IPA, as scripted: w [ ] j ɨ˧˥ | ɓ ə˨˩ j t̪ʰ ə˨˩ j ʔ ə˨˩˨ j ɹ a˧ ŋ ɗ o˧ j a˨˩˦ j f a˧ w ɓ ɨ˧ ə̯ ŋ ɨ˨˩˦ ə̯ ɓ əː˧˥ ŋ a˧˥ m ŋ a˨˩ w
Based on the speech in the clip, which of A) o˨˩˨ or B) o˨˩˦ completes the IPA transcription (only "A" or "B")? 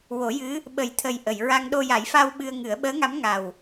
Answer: B